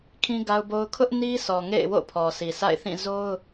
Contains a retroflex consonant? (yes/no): no